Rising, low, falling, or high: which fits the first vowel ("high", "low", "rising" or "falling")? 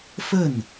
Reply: falling